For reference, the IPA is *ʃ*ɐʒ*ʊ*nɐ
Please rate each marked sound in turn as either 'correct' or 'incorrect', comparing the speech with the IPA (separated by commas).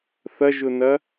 incorrect, correct